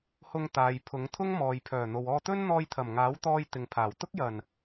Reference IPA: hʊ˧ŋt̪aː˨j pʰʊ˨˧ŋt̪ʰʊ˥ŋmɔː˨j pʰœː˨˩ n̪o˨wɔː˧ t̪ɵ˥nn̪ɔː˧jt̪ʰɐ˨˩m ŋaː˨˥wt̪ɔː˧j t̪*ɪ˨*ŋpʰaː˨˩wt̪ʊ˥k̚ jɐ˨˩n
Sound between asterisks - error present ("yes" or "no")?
no